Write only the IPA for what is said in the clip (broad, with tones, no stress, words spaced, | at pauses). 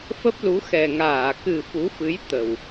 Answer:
fə˦˥p̚lu˨˦ xɛ˨˩ŋaː˧˩ kɨ˨˩ fu˨˦fɨ˨˦j t̪ə˨˩w